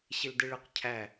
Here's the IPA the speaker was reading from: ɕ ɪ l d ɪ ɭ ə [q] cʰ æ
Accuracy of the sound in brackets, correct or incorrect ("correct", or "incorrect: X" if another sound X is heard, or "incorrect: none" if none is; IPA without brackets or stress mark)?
correct